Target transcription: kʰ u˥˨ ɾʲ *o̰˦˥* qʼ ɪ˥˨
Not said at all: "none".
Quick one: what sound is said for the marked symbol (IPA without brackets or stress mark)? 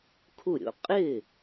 o̰˦˥